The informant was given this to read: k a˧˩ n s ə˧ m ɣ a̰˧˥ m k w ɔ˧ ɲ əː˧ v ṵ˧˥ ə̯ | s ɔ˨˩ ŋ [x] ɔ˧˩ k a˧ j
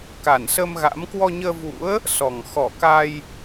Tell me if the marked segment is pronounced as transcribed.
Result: yes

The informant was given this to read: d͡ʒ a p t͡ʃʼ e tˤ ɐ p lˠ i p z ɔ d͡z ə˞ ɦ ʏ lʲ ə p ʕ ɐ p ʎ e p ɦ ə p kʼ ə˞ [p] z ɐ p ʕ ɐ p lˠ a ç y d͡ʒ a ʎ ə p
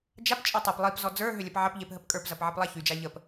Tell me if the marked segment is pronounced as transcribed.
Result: yes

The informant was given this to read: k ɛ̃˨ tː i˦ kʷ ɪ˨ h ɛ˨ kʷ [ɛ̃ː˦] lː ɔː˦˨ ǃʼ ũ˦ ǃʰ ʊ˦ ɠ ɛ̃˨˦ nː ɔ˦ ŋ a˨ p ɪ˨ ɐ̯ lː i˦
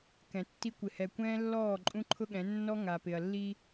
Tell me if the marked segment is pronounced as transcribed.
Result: yes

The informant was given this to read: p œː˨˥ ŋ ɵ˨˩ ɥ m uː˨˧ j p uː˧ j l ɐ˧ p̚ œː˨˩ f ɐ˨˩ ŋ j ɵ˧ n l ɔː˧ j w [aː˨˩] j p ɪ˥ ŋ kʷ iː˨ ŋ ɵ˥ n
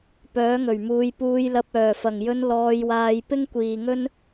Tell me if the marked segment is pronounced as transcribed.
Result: no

